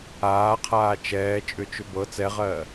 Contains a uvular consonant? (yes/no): yes